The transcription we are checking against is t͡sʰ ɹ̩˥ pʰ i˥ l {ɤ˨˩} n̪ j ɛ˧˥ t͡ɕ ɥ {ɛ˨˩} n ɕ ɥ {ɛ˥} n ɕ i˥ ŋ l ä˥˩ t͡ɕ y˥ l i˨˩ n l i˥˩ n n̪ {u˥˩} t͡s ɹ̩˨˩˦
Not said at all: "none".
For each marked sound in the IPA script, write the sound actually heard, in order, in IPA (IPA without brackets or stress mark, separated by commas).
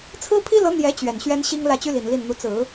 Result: ɤ˧˥, ɛ˨˩, ɛ˥, u˧˥